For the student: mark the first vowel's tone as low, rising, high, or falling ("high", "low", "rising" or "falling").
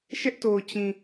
high